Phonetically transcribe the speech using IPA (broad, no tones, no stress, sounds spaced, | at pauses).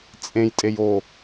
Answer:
t͡sʼ ẽ j tʼ e j o